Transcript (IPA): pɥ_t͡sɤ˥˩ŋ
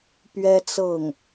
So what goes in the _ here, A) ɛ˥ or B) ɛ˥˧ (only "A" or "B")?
A